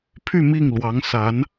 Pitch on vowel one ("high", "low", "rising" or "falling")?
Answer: falling